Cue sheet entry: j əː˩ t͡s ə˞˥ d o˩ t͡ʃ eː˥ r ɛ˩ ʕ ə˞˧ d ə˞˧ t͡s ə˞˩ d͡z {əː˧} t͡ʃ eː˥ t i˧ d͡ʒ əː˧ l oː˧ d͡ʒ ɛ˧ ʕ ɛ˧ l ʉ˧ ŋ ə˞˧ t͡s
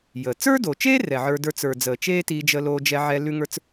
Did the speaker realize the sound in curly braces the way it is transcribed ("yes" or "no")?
no